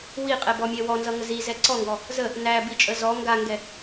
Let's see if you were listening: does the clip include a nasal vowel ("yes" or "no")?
no